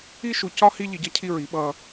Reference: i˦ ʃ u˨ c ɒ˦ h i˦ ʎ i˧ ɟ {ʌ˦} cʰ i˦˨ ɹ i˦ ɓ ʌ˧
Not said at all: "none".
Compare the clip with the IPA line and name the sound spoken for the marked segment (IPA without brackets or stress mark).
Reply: ʌ˦